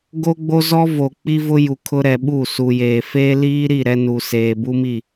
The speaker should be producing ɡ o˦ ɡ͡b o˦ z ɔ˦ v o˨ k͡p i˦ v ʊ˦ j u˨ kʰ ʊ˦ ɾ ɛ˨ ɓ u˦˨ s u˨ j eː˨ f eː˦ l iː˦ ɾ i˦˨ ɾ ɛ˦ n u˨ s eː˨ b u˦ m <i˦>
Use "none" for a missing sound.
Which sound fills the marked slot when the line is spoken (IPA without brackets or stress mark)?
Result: i˦˨